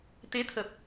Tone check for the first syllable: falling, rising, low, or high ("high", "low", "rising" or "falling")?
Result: rising